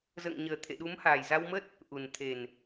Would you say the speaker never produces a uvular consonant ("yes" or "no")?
yes